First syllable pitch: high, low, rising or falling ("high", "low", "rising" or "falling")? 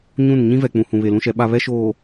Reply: falling